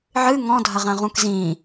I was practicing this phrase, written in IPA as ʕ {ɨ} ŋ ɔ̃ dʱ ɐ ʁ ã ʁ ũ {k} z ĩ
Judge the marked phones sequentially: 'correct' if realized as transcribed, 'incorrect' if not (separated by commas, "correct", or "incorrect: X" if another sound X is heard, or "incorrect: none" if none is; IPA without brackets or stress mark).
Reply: correct, correct